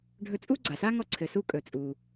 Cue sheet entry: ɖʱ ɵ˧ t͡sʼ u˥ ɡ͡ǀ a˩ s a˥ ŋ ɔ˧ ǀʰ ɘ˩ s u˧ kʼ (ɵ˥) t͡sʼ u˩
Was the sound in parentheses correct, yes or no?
no